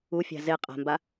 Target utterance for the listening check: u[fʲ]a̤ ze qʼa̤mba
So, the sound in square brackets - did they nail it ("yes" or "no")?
yes